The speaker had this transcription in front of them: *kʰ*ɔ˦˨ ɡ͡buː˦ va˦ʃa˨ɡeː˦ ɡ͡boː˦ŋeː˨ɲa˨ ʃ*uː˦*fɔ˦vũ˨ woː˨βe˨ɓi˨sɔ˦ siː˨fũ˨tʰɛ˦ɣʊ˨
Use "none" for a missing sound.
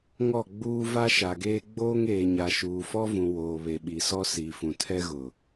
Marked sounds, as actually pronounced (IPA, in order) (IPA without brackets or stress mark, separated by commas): ŋ, uː˨